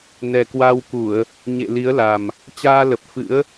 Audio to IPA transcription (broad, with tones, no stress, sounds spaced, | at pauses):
n ɛ˨˩ k w a˧ w k u˧˩˨ ə̯ | ɲ ḛ˧˨ l i˨˦ ə̯ l a˨˩ m | t͡ɕ aː˧ l ə˨˩ p̚ f ɨ̰˧˥ ə̯